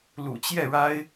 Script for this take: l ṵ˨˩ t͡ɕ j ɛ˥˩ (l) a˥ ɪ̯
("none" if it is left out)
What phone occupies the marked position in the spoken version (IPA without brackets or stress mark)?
ɻ